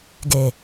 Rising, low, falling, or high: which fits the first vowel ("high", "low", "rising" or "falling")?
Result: low